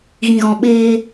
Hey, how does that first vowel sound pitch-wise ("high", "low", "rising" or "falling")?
low